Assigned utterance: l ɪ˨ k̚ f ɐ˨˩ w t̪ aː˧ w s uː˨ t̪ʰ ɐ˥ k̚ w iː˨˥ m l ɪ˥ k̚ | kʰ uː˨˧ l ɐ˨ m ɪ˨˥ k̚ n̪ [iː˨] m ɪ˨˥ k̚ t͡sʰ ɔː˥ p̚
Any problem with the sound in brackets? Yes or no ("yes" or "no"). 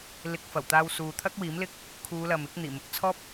yes